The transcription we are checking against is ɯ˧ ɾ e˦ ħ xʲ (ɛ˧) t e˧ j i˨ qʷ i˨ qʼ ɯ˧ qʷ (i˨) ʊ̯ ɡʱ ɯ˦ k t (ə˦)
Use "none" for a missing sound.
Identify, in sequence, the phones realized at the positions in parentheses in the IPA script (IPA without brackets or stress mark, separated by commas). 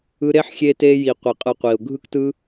e˧, i˨, ɯ˦